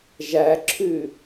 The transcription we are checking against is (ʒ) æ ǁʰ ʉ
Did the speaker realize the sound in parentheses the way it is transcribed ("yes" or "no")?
yes